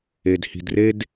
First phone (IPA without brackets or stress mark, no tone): e